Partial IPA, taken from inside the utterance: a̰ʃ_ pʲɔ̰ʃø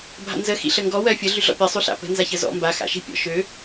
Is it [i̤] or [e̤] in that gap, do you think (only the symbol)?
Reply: i̤